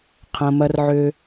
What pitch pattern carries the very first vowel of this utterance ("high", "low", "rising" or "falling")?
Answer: low